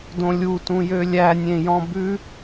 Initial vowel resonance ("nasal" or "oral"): nasal